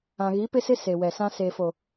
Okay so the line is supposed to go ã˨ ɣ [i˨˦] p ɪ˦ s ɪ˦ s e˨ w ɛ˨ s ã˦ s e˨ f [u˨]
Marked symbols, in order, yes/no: yes, no

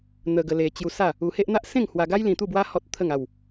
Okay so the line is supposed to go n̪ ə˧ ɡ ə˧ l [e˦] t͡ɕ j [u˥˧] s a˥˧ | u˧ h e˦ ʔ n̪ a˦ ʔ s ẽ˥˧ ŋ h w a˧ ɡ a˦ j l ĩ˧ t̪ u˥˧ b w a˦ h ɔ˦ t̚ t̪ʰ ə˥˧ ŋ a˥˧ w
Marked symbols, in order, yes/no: no, no

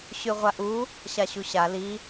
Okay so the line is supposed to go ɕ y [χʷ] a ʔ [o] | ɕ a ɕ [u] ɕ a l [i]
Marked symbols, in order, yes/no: no, no, yes, yes

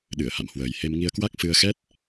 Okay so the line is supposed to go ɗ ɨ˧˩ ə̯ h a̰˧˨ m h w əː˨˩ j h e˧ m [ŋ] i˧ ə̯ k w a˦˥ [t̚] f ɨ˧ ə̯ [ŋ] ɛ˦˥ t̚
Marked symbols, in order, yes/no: yes, no, no

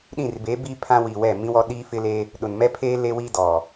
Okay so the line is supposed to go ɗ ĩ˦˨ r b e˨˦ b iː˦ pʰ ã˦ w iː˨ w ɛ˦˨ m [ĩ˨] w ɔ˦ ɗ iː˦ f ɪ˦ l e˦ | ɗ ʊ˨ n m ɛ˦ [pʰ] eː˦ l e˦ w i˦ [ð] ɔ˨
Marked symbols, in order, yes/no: no, yes, no

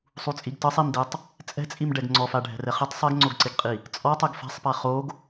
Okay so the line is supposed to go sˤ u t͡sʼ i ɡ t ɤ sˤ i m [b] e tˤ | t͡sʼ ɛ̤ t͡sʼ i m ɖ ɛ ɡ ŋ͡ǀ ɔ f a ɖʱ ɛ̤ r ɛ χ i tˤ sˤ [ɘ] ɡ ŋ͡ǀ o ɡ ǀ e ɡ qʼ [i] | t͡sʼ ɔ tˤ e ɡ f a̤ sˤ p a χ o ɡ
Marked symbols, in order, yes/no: no, no, yes

